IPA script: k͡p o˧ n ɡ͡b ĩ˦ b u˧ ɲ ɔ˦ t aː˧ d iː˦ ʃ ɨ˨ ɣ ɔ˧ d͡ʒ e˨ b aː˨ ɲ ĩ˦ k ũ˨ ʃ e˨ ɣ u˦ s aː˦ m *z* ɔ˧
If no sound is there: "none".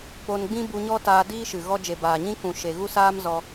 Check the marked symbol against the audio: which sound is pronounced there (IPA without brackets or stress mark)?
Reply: z